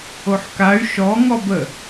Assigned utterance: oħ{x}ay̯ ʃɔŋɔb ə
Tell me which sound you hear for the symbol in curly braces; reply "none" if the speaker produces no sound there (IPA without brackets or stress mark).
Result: k